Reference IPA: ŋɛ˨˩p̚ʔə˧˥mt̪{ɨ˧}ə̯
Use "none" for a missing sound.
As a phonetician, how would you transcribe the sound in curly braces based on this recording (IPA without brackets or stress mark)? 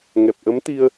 i˧